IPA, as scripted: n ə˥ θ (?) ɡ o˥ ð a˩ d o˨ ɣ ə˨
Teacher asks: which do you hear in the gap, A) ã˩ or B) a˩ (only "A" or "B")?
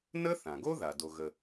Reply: A